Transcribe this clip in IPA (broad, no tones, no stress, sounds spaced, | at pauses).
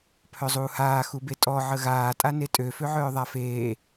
pʰ œ zˤ uː h aː x u b e tʼ ɔ ʕ ə ɣ aː tʼ a n e tʼ ø f ø ʕ œː ðˤ a f eː